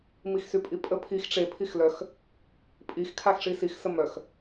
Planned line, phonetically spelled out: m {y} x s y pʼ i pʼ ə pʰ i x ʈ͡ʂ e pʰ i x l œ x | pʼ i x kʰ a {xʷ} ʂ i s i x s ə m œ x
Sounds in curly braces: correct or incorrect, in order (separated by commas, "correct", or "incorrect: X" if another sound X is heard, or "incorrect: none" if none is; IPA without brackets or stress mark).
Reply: incorrect: i, incorrect: x